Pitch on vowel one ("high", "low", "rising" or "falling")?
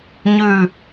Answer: falling